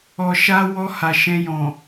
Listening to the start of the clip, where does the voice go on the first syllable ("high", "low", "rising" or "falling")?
low